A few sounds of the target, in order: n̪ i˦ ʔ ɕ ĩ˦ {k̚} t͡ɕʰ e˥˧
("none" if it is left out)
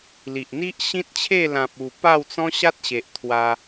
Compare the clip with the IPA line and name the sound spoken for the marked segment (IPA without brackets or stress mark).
t̚